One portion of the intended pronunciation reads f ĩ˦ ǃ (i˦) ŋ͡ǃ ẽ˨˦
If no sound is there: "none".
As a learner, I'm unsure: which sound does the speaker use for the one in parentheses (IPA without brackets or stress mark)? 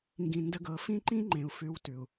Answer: ĩ˦